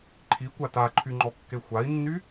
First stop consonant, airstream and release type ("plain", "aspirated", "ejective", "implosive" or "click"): click